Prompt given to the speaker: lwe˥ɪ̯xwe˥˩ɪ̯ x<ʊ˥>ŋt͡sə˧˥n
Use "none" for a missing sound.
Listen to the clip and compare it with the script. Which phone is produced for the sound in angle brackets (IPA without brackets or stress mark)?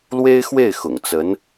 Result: ʊ̰˨˩